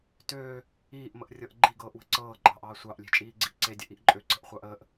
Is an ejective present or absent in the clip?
present